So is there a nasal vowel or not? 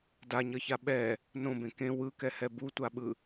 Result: yes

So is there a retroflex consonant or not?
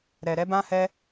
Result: no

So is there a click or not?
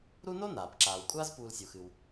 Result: yes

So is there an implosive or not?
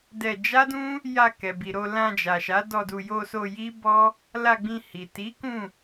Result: no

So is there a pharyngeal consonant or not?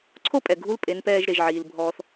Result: yes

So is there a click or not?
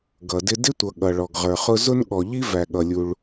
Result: no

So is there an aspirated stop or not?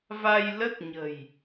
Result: no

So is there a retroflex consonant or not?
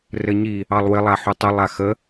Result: no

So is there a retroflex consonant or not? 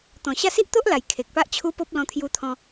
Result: no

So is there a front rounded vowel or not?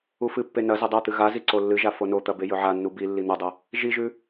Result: no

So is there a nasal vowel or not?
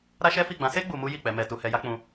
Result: yes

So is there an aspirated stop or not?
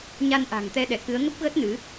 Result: no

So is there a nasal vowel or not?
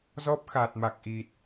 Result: no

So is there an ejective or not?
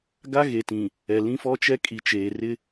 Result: yes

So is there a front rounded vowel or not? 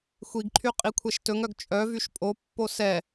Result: yes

